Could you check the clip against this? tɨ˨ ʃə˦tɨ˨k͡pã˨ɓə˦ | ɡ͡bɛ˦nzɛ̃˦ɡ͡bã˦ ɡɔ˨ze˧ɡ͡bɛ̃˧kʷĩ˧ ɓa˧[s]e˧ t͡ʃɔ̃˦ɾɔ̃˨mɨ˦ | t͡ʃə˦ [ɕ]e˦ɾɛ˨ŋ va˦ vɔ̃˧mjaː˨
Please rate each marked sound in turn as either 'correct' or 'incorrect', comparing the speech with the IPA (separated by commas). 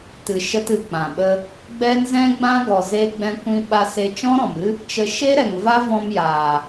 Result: correct, incorrect